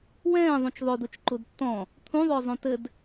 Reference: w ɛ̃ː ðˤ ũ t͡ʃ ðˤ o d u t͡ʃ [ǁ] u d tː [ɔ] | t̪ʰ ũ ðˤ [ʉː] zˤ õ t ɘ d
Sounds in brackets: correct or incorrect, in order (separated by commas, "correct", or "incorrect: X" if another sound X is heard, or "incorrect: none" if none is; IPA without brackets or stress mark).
incorrect: ǃ, incorrect: ɔ̃, incorrect: ʊː